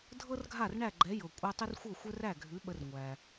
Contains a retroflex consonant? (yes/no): yes